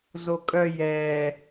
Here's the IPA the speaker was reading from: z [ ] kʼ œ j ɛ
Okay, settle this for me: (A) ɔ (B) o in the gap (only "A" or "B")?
B